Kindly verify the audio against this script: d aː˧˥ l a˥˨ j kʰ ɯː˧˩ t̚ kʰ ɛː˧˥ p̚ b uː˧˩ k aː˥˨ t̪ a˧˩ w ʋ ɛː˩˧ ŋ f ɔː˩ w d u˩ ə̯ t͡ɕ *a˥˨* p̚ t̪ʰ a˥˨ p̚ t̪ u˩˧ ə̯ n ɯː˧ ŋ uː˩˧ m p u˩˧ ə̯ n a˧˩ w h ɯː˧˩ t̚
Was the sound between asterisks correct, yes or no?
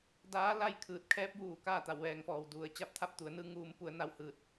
yes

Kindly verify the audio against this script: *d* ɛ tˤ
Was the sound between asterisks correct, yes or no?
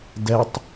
yes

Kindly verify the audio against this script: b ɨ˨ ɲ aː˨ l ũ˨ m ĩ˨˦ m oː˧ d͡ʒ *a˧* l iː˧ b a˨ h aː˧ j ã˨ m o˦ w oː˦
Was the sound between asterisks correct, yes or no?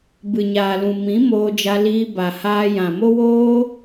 yes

